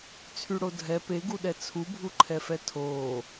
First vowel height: high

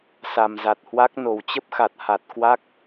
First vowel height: low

